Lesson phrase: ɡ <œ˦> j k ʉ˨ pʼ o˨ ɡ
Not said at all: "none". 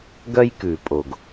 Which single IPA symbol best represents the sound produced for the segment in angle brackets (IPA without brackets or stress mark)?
œ˦